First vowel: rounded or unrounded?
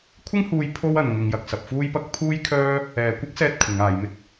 unrounded